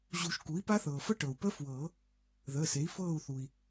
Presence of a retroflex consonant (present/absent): present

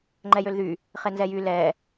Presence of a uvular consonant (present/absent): present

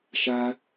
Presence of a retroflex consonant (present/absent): absent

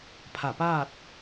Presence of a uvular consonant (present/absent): absent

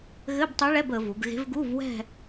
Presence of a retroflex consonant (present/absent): present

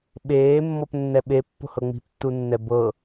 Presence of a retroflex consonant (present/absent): absent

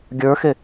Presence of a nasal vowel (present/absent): absent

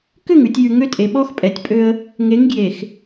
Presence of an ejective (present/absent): present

